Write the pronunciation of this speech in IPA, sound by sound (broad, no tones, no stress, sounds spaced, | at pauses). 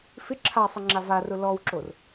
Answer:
f ɪ ǁʰ a sˤ ɪ ŋ͡ǁ a v a r ʊ l ɔ w ǁ o r